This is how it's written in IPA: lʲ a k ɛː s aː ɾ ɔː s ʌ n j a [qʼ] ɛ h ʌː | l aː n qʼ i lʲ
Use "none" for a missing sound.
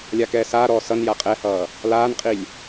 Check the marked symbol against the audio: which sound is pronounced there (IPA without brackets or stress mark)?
qʼ